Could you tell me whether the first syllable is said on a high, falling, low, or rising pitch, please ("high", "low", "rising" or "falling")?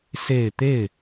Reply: low